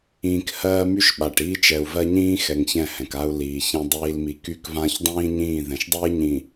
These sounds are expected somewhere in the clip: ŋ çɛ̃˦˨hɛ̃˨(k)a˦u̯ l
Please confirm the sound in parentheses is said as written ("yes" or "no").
yes